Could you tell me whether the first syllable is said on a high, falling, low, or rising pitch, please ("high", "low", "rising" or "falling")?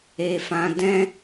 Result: low